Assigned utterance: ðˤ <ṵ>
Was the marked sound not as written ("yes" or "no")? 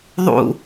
no